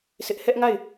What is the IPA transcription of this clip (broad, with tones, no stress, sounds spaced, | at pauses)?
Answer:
s ɪ˦ ʔ h ɛ˦ ʔ ŋ a˦˨ ɪ̯